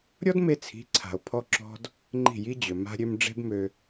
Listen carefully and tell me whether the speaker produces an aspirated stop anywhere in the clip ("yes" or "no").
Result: yes